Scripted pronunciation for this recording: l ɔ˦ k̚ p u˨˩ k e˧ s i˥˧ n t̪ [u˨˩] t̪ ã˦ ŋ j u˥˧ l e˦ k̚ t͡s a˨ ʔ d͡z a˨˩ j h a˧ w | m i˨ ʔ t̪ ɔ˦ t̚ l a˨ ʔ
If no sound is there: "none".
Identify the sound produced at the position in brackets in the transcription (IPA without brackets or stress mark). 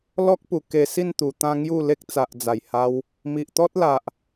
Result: u˨˩